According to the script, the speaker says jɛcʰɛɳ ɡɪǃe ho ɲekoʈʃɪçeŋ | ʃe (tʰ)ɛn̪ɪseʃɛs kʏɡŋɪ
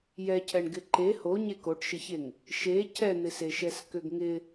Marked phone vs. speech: incorrect: cʰ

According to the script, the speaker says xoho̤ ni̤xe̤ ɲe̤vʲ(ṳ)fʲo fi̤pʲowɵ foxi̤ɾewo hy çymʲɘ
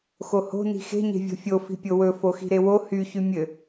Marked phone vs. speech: incorrect: o̤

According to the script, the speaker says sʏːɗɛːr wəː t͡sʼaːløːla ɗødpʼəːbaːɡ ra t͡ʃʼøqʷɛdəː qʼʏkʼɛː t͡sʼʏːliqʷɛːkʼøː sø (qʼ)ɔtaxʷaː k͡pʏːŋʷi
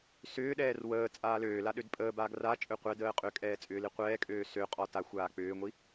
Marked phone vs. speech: correct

